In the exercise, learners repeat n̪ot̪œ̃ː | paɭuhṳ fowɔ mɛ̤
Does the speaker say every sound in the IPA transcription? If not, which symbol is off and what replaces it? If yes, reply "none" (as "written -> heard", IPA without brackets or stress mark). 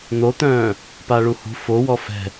m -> f